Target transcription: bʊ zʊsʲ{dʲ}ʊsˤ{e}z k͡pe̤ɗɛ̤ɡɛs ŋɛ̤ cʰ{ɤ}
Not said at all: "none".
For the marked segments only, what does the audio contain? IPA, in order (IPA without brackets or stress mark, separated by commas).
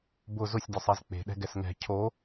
dʲ, e, o